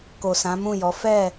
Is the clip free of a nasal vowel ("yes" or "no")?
no